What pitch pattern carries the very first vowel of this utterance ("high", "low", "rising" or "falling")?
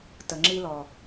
low